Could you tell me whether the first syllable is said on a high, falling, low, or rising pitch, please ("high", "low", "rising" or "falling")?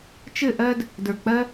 falling